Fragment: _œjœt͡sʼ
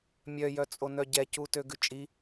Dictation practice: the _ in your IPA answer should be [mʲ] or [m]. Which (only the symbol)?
mʲ